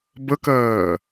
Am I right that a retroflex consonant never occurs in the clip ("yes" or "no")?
yes